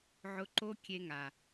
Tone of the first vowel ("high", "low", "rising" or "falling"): high